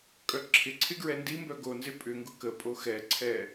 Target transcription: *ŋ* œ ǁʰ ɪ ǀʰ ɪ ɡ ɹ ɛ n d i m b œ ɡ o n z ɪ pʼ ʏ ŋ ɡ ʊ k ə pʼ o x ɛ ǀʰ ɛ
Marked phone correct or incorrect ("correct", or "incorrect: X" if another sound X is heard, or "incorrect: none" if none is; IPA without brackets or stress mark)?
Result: incorrect: kʼ